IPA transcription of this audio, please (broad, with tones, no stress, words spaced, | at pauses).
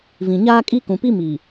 vĩ˨ɲaː˦ kʼi˦kũ˨pi˦ mi˨